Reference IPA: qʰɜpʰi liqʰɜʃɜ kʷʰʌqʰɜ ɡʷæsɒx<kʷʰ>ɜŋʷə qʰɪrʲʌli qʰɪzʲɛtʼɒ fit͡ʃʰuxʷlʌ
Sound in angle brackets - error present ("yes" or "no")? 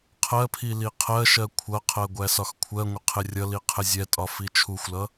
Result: no